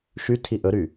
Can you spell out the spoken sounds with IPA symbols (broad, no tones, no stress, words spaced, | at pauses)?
ʃy tʰiʔɵɾy